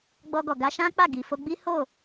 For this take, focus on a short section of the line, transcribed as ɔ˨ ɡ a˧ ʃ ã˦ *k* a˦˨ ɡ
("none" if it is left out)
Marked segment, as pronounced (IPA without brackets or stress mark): k͡p